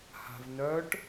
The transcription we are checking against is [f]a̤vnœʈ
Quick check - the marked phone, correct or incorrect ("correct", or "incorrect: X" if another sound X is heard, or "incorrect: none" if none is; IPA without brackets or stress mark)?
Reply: incorrect: h